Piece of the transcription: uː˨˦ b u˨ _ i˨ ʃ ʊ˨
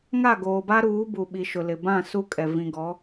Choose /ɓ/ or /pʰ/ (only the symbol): ɓ